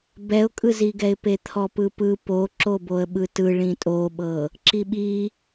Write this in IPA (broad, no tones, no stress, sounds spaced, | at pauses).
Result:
b ɛ ʊ̯ kʼ ɯ z i ɡ ɛ ɪ̯ p e t̪ʰ ɔ p ɯ p ɯ p o ǁ o b o ə̯ ɓ ɯ t ɯ ɭ ĩ tʼ o ɓ ɤ | ǁ i ɓ i